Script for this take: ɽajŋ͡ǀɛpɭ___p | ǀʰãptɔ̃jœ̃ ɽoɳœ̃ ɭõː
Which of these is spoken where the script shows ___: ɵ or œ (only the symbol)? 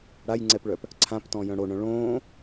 œ